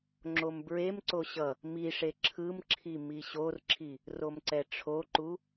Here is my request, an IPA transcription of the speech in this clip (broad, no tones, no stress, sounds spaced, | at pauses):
ŋ͡ǁ o m b ɹ e m ǀ o ɕ ʌ | m i ʂ e ǁʰ ɯ m ǁʰ i m i ɕ o r ǁʰ i | r o m ǀ ɛ ʈ͡ʂʰ o ǃ u